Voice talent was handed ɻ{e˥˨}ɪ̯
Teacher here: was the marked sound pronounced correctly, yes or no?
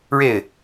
yes